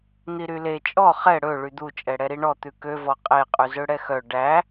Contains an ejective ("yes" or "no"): yes